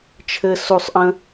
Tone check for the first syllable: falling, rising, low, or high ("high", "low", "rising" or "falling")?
high